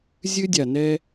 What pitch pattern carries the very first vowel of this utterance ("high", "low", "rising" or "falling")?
high